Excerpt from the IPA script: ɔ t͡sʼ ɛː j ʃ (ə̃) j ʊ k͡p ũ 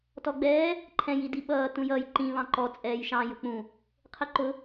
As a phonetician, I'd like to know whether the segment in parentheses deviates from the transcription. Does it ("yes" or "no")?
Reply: yes